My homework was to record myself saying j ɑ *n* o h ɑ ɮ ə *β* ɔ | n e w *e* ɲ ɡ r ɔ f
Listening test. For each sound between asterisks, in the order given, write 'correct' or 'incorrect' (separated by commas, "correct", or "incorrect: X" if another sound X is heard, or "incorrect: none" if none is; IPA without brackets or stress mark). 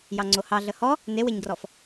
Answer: incorrect: ŋ͡ǀ, incorrect: h, correct